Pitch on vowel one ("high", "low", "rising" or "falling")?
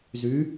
rising